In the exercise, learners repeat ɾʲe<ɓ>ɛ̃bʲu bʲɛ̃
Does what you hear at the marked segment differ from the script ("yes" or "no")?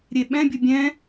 no